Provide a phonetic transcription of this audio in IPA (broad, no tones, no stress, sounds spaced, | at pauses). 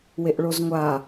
w e ʔ ɭ o z ŋʷ a